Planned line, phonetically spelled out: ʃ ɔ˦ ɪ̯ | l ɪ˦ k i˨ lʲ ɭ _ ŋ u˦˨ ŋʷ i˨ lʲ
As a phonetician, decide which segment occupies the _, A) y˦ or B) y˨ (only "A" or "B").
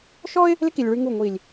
A